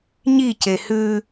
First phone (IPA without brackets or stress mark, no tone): ɲ